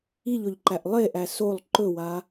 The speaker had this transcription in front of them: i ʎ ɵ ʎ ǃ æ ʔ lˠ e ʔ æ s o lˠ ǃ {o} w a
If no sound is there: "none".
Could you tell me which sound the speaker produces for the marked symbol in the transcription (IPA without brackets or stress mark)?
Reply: ɵ